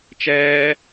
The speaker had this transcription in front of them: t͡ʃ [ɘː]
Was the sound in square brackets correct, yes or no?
no